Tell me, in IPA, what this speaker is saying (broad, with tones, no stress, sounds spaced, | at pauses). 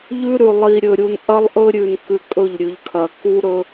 ʎ ʉ˦ ɾ ʉ˨ lˠ i˨ ɾʲ ɵ˨ ɾʲ u˨ n ʔ ɐ˦ lˠ ʔ ɵ˦ ɾʲ ʉ˨ n k ʉ˨ kʼ ɵ˦˨ ʎ ɾʲ ʉ˨ ʎ kʰ ɐ˨ k u˦ ɾ ɵ˦